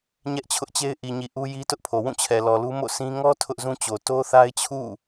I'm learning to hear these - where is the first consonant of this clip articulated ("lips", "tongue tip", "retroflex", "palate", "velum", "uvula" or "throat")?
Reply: palate